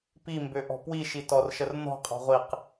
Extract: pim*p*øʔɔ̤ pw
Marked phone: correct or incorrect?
incorrect